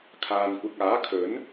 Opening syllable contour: low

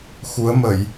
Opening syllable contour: rising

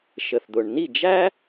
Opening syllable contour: low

